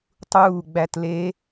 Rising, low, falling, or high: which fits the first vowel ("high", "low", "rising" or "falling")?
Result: falling